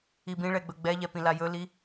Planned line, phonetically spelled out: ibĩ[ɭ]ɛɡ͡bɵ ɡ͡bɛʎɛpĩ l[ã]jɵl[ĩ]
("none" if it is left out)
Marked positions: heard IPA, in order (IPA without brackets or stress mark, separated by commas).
ɭ, a, i